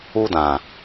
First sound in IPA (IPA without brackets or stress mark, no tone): u